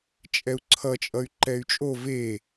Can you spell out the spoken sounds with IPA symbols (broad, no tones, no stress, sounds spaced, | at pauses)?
t͡ʃʼ ɛ u̯ ǀʰ ʌ t͡ʃʼ ʌ y̯ ǃ ɛ y̯ t͡ʃʼ o v e